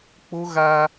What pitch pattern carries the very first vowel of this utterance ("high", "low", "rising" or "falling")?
high